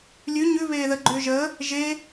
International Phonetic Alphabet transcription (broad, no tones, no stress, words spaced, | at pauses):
lʲʉ ɲʉ βeːðə ɡ͡ǃʏːʒəː | ʒe